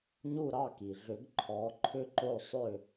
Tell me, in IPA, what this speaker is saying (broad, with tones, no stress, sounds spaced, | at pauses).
ɲ u˦˨ ɾ ɑ˦˨ k i˩ ɮ ʏ˨˩˦ ɡ ǃʰ ɔ˨˦ ǃʰ ʏ˦ ǃ o˦˨ sˤ ʏ˦˨